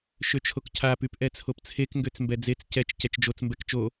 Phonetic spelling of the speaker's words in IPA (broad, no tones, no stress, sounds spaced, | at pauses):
ʃ ø t͡ʃʰ o k cʰ a p y p ʔ ɛ t͡sʰ o p t͡sʰ e k ŋ ɡ ø t͡s m b ɛ d͡z e t͡s c ɛ t͡ʃ c ɛ t͡ʃ d͡ʒ o t͡s m b ɛ k t͡ʃ o